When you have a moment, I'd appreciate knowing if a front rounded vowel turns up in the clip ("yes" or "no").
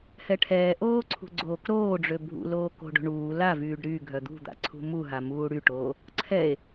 yes